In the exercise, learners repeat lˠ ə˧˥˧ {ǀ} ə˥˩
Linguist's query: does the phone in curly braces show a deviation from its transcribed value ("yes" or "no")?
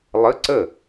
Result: no